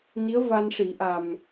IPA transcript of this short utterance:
n i˧˥ ə̯ v a˧ n ʂ i˨˩˦ ʔ a˨˩ m

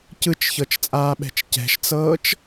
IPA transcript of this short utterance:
c ɯ t͡ʃ ç ɤ t͡ʃ t͡sʼ aː ɓ ɛ̤ t͡ʃ c ɛ̤ ʃ t͡s ɤː t͡ʃ

